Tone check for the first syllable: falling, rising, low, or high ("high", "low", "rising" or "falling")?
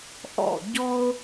falling